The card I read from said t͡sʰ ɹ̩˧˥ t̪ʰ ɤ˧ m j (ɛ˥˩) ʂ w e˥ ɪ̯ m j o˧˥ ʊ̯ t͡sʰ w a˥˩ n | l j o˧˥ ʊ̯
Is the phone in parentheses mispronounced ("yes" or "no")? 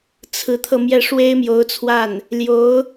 no